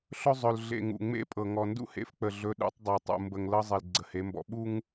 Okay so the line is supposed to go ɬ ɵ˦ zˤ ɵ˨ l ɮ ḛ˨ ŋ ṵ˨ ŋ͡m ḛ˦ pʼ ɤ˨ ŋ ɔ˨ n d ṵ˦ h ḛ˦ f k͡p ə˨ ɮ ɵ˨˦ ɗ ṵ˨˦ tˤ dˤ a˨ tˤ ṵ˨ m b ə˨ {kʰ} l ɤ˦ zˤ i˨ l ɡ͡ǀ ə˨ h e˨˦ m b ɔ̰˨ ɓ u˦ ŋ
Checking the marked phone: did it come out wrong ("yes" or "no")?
yes